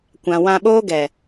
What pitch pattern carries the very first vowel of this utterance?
low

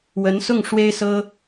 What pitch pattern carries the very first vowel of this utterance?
rising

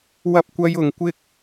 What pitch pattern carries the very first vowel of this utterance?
high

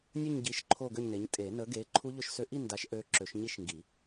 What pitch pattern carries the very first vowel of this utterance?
falling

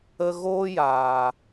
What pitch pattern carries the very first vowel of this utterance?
high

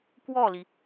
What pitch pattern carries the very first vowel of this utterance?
falling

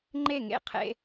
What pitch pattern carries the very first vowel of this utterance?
falling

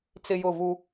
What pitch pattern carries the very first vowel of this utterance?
high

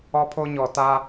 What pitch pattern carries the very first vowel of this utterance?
high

